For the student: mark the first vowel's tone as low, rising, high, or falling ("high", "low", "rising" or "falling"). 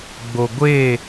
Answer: low